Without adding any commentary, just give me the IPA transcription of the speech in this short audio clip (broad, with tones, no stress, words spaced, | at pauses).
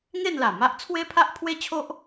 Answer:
ŋe˥˧nla˨˩ma˦ʔ t͡sʰwe˦pʰa˦ʔpʰwe˦t͡ɕʰo˦ʔ